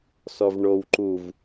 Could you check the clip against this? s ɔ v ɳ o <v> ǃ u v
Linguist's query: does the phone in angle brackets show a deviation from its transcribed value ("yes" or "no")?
yes